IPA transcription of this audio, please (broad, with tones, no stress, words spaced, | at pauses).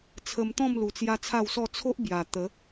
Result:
t͡sʰə˧mt̪ɔ̃˥˧m lu˧t͡sja˦t͡sʰa˥˧wsɔ˥˧ t͡sʰo˦ʔbja˨˩ t̪ə˨˦